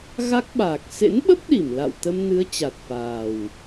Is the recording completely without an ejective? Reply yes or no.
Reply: yes